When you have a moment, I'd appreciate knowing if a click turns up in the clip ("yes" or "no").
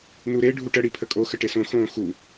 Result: no